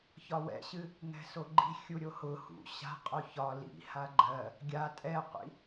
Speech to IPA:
çɒwɛ̰ɕɨ | ŋɛ̤soɡ͡ǃi̤ xʲuɾʲohʊ hṵ ɕa̤ qʼoçɒ lḭ haɡ͡ǃɜ | ɡʲa tʼɛqʷḭ

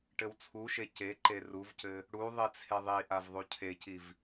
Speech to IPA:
ʈɘwt͡sʰuʃe ceǃe ruvcɘ | ɽu ðˤit͡sʰeðˤiʔav ðˤucʰeciv

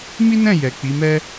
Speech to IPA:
mi˦nɛ̃˦˨ jɛ˨k͡pi˨˦mɛ˦

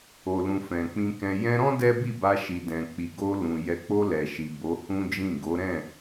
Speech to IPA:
o˨lũ˨ fɛ̃˨k͡pĩ˧kɛ̃˧ jɛ̃˧ɾɔ̃˦ dɛ˦bi˦˨ba˧ ʃi˨dɛ̃˨k͡pi˨ ɡo˧ lũ˨ jɛ˨k͡po˧ lɛ˨ʃi˨ bo˨˦hũ˦d͡ʒĩ˦˨ ɡo˨˦ɾɛ̃˦˨

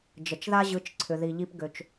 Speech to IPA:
d͡ʒə˨t͡ʃða˦ʑɯ˨˦t͡ʃǀʰʏ˨ ði˨ʎi˧p ɡø˨t͡ʃ

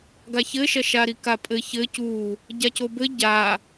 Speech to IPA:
ɡaçɘʃɐ ʃaɾikapʼɘ çɘ cu | ɟacobɘ ɟa

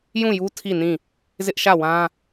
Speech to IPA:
jũ˦˨ju˦ tʰi˦˨nĩ˦˨ | zɪ˦ʔʃä˦˨wã˦

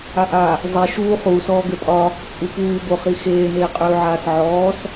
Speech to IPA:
aʔa | zˤe ʃuː χuːs ɔːɡøtʼɒ | t͡sʼupuːboχi xeːneːqʼøːʕaːs ʕɔːs

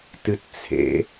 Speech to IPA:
tɨtt͡sʰḛ

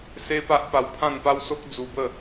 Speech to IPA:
se˦ pa˦ʔpa˧wpʰã˥˧n pa˦wso˦k̚ d͡zu˧bə˥˧

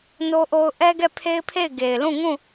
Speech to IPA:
no˦ʔo˦ʊ̯ ʔɛ˦ɡɛ˦˨pʰe˦ɪ̯pʰe˦˨ɪ̯ ɡe˨ɪ̯lũ˦˨ŋũ˦˨

